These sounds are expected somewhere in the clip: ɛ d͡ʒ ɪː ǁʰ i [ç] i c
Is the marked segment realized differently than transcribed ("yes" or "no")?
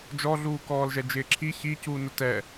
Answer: no